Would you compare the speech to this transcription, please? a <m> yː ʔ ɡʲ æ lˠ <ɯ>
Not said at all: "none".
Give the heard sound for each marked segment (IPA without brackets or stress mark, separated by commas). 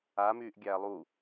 m, u